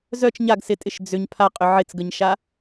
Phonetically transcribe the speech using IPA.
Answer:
zœt͡ʃ ɲaɡsɪtʼɪʃ d͡zʏɲ pʰaqʼʏ ʕɪt͡sɡəɲʃa

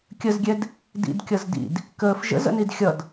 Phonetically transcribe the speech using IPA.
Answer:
kʲəzɡʲɛd | dḭdkʲʌz dḭd | kəːf ʒə̰zə̰nid xʲʌd

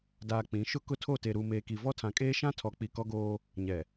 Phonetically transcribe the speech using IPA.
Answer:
daː˨ k͡pĩ˨˦ʃʊ˦ kʊ˦tʰo˦˨ te˨ɾu˨ meː˨ki˨vɔ˦ tʰã˨kʼeː˦ʃã˦ tʰɔ˨k͡pi˨kɔ˦ɡoː˦ | ɲɛ˨

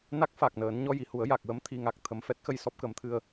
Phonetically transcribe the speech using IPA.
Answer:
na˦˥k̚fa˨˩k̚nəː˨˩˦n ɲɔ˧ji˨˩˨hu˨˩˦ə̯ ja˨˩k̚wə˧˥m t̪ʰi˨˩ŋa˨˩k̚ t̪ʰə˨˩˦mfɛ˦˥t̚xə˧j sɔ˦˥p̚kə˨˩˦mt̪ʰɨ˧ə̯

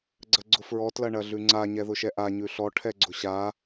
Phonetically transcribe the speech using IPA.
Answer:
ɡ͡ǀɐɡ͡ǀʊfɹɔ tlɐɳɐɮʉŋ͡ǀa ɲɛðʊʃɛʔa ɲʉɬɔ ʈʰɛɡ͡ǀʊɕa

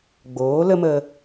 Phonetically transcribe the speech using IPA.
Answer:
ɡ͡boː˨˦lə˦mə˧

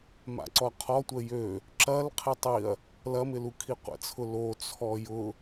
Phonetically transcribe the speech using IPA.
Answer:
ma̰ǀɔqʰɔ tʷəjø | ǁɐl qʰetˤiɐ̯ | lɐmɪlu kʰiqʷə̰t͡sʰʊ lo t͡sʰɔjʊ

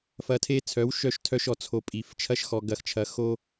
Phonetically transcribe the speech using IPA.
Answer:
fɐ˧tʰe˦t͡sʰœ˨˦w ʃœ˦ʃtʰœ˦ʃɔ˧t͡sʰo˧ pʼi˨f t͡ʃʰɐ˦ʃxɔ˧ ɡɐ˧xt͡ʃʰɐ˧ xo˦

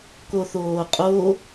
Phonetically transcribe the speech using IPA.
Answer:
koθoːqʼo

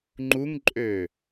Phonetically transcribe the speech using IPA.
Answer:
ŋ͡ǃuŋǃʼø

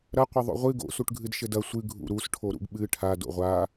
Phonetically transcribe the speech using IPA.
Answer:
ɾɐqʷɘ ðˤo̰ʁʷɨ ɡo̰suʈɡʱɨd ʃɘdɐ sʷɨ ɡʱṵɾusʈʰo ɾṵɡɓɨ ʈʰa do̰ʁʷa

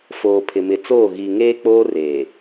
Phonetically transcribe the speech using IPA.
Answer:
foː˨pʰɪ˨mɪ˨t͡soː˦˨ ɣi˨ ŋeː˦k͡poː˦reː˨

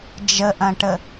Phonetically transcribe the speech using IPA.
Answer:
d͡ʒəʔɐ̃ʈə

